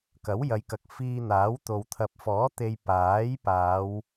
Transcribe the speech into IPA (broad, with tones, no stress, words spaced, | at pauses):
kɐ˨˥wjɐ˨˧jkɐ˨k̚fiː˧ n̪aː˨˥wt̪o˨w t̪ʰɐ˨p̚fɔː˨˥ t̪e˧j paː˨˥jpaː˨˧w